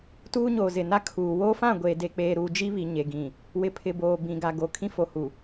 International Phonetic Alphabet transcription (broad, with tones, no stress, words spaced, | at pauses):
tuː˦ɲoː˨ zɪ˨na˦ kʰuː˨ woː˦fã˦˨ ɡʷeː˨ de˨k͡peː˨ɾuː˨ d͡ʒi˦βi˨ ɲe˨ɡĩ˨ | wɪ˨pʰɪ˨boː˨ bĩ˨ɡa˨ɡo˨ kʰĩ˦fo˨ hu˨